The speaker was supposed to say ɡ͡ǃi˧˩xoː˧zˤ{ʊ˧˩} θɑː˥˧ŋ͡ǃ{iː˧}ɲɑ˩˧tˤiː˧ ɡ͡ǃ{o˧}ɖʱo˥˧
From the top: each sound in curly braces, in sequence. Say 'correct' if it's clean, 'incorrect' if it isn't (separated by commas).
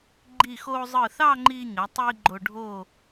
incorrect, correct, correct